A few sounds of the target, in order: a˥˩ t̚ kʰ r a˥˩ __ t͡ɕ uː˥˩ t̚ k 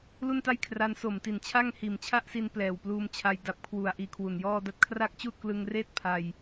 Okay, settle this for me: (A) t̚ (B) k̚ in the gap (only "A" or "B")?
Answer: B